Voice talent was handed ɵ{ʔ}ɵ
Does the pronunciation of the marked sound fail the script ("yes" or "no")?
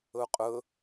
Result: yes